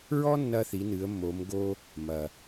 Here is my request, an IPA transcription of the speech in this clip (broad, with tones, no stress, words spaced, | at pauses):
ɹɔ˥ nːɐ˧θi˩˧nɨ˩˧ə̯ mːo˩˧mɡo˧ | mɐ˩